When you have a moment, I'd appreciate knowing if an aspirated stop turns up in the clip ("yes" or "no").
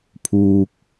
yes